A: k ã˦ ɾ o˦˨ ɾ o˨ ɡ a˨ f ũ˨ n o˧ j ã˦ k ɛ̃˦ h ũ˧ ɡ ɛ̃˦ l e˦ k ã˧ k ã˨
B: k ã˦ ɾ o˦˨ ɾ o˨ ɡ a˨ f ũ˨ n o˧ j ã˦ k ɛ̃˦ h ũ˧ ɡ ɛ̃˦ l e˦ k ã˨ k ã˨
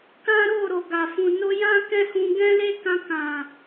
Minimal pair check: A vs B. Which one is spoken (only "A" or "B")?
A